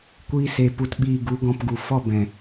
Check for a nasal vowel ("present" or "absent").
present